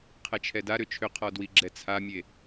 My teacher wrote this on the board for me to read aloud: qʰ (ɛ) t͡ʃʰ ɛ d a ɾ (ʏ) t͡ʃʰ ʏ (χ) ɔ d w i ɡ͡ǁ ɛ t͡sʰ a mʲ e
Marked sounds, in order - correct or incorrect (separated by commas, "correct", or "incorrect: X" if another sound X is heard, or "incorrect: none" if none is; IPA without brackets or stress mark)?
correct, correct, incorrect: qʰ